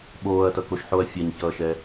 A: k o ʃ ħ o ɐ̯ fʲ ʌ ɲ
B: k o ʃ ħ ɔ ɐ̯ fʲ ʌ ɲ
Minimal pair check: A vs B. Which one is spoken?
A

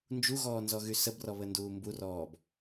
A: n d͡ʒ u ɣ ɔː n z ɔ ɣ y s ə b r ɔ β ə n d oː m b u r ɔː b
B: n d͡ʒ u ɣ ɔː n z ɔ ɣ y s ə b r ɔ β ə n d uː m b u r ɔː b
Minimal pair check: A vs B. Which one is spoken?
B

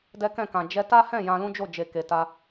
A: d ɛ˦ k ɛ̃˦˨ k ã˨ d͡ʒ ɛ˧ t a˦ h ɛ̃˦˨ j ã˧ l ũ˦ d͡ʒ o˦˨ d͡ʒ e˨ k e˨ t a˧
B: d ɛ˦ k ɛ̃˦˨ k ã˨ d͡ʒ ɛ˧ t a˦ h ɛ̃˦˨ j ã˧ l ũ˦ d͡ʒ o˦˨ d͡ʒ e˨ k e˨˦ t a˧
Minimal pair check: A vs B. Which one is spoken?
A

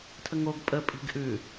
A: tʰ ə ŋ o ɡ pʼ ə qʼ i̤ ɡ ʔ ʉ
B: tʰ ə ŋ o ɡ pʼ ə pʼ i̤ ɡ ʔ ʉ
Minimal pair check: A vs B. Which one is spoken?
B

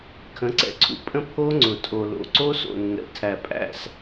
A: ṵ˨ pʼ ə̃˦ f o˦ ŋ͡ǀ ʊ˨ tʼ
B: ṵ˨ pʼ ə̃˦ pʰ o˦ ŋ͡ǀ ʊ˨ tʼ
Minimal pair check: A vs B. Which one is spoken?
B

